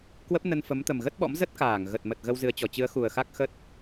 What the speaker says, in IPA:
k w ə˦˥ p̚ n ə˧ n f ə˨˦ m t̪ ə˨˩ m ɣ ə˦˥ t̚ ɓ ɔ̰˧˥ m z ə˦˥ t̚ k aː˧˩ ŋ ɣ ə˨˩ t̚ m ə˨˩ t̚ ɣ ə˧ w z ɨ˨˦ ə̯ t͡ɕ ɔ˨˩ t͡ɕ ɨ˨˦ ə̯ x u˨˩ ə̯ x a˦˥ k̚ x ə˦˥ t̚

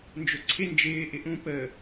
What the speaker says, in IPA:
n d͡ʒ ʊ ǀʰ ɪ n d͡ʒ ɪː ʔ ɪ ʔ ũ p ə

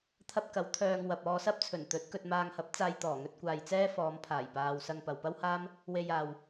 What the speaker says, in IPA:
t̪ʰ ɐ˧ p̚ k ɐ˨˥ w t̪ʰ œː˧ ŋ w ɐ˨ p̚ ɔː˧ s ɐ˥ p̚ t͡sʰ ɵ˨˩ n t̪ ɵ˨˥ t̚ k ɵ˨ t̚ m aː˨ ŋ h ɐ˨˥ p̚ t͡s aː˧ j t̪ ɔː˨˩ ŋ ɵ˧ t̚ kʷ aː˨ j t͡s ɛː˥ f ɔː˨˧ m pʰ aː˨˩ j p aː˨ w s ɐ˧ ŋ p ɐ˨ w p ɐ˥ w h aː˥ m | w e˧ j aː˨ w

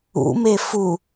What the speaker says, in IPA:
ṵ m e f u

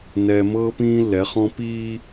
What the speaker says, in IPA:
n ɛː˨ m ɤː˦ p ĩː˦ lː ɛ˨˦ χ ɔ̃˦ p iː˦

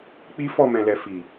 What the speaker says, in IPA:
k͡p i˦ f ɔ˦˨ m ɛ̃˨ l ɛ˨ f i˨

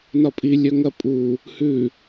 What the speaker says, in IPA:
n ɒ pʼ i lʲ œ ŋ ɐ pʼ u | h ʉ

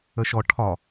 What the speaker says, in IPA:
ə ʃ ɔ ʈʰ ɒ

